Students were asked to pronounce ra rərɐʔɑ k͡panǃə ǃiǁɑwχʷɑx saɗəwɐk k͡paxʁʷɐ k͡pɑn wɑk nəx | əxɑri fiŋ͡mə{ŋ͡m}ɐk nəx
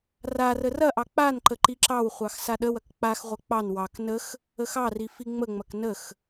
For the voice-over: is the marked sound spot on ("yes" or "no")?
yes